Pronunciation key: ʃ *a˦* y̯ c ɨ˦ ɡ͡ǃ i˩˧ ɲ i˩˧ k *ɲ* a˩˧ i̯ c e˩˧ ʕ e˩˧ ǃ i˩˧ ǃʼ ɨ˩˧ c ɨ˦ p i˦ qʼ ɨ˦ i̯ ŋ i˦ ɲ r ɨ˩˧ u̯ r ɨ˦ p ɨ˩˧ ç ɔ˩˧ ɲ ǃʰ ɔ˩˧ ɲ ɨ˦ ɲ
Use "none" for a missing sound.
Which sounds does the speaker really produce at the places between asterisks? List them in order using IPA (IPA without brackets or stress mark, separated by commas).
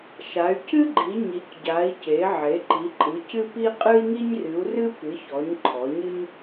a˩˧, ɟ